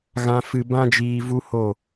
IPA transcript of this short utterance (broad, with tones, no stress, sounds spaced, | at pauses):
ɣ ã˦ f ɨ˧ b ã˦ d͡ʒ iː˧ v u˦ h o˦˨